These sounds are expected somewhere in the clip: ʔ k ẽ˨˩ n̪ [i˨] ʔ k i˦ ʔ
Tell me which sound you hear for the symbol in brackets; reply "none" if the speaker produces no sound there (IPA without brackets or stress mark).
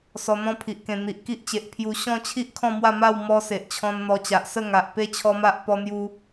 i˨